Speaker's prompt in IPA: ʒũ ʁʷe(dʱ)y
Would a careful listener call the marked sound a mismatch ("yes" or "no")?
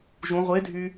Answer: no